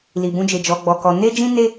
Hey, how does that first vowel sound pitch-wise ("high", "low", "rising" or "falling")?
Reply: low